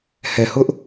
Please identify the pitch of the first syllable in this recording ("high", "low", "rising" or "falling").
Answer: low